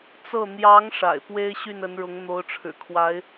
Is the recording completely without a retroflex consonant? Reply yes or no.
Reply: no